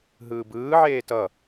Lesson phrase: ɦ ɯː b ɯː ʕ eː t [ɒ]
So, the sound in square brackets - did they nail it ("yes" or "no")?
no